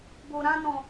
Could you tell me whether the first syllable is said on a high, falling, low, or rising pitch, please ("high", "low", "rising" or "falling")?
low